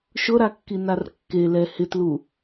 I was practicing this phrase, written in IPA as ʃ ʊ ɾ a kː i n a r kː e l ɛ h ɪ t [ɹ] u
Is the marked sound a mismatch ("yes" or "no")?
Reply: yes